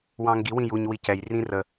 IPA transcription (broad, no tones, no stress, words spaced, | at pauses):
wɑ̃ŋɡi wĩjuɲ wicɛj rĩrə